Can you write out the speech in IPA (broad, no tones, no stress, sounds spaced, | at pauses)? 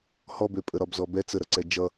h ɔ b ø pʼ ə ɾ ɒ b z ɔ b ɛ t͡s ə ɾ ʌ ǀ ɛ d͡ʒ ʌ